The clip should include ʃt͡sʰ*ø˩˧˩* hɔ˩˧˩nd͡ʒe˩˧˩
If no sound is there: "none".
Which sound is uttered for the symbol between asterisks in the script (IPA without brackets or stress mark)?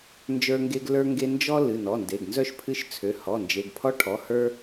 ø˩˧˩